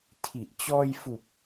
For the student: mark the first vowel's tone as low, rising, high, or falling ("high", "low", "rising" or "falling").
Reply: low